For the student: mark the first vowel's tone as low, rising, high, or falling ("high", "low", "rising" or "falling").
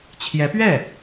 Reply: rising